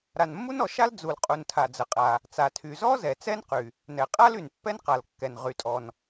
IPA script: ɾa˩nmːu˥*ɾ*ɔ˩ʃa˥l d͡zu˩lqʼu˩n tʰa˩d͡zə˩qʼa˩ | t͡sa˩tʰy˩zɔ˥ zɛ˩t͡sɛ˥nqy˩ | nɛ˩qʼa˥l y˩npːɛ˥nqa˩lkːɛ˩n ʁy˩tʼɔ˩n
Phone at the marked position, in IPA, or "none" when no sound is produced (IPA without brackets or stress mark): n